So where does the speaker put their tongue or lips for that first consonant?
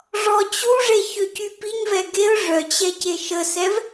retroflex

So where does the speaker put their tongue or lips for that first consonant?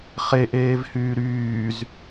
uvula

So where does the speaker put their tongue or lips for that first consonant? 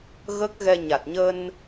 velum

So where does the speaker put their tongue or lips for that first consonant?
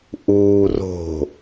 throat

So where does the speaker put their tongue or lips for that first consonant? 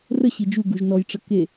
tongue tip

